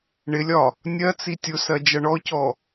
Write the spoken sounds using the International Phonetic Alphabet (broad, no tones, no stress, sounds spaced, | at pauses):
ɳ ɪ lʲ ɒ | nʲ ɜ t͡s i tʲ ʊ s ɜ d͡ʒ ʌ ɳ ɔ c ɔ